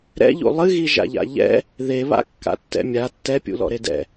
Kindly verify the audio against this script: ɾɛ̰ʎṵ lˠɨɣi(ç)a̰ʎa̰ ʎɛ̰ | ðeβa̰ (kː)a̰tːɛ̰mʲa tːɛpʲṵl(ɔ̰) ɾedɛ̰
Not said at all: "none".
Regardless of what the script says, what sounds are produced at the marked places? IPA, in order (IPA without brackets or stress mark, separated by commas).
ʒ, kː, ɔ̰